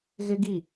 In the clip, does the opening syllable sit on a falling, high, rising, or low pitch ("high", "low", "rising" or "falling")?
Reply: high